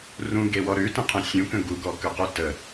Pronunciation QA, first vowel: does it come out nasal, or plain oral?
nasal